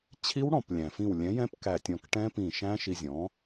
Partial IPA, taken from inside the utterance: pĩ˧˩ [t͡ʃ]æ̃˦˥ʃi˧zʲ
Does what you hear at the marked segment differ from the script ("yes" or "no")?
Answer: yes